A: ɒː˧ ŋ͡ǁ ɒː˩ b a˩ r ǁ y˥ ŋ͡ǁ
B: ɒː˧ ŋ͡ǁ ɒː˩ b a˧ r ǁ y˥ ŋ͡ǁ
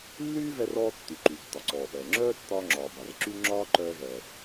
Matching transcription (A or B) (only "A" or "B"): A